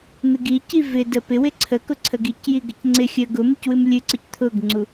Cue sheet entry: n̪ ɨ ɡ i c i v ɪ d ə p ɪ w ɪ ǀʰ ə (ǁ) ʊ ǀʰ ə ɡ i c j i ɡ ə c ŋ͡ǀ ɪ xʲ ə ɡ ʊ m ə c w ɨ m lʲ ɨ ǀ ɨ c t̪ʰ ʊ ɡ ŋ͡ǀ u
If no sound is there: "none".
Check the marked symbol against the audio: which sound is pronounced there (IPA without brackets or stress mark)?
k